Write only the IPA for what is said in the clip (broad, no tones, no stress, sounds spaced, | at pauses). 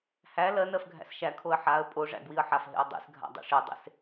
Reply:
h æ l ɜ n ɜ f ɡʱ æ̰ s ʃ æ kʰ o ə̯ ħ a ə̯ pʼ o ʐ æ̰ ɡ w i ə̯ ħ a f ɦ ḛ ə̯ dˤ ḭ s ɡʱ a̰ dˤ ḛ ʂ e dˤ ḛ s